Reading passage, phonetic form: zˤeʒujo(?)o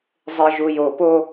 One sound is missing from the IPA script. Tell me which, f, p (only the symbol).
p